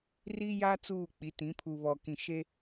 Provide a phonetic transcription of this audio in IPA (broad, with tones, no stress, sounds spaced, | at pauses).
r i˦ j a˦ t͡s uː˦˨ k͡p i˨˦ t ĩ˨˦ pʰ u˨ β ɔ˨ k ĩ˨ ʃ e˦